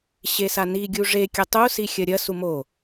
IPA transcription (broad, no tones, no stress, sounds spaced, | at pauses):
ɕ e s a n i ɡʲ u ʐ e kʲ ɐ tˤ u s i xʲ ɐ ɾʲ ɐ s u m o